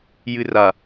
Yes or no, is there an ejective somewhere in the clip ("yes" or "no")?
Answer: no